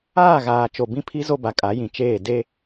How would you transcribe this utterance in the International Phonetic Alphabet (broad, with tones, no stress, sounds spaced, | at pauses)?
aː˦˨ ɣ aː˨ t͡ʃ o˨ b ĩ˦ pʰ i˦ z o˦ b a˨ kʼ a˨˦ j ĩ˨ t͡ʃ eː˦˨ d e˦